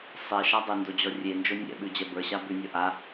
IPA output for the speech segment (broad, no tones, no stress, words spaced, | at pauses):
sˤeʃa dˤɘndod͡ʑɔ rʲend͡ʒo nʲɛ̰ɓʉd͡ʑɛ bə˞ɕa bʉnʲɔ ʔa